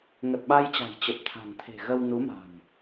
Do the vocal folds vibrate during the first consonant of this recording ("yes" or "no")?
yes